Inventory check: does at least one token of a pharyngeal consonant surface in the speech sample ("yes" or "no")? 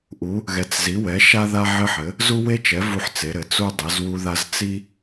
yes